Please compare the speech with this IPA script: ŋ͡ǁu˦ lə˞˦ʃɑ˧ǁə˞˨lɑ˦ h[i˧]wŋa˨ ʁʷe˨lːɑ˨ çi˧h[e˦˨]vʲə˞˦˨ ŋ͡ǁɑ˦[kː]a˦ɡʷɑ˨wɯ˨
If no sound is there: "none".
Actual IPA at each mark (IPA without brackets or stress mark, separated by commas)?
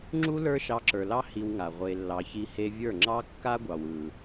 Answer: i˧, e˧, kː